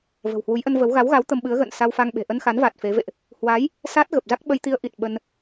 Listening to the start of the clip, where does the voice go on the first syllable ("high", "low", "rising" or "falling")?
low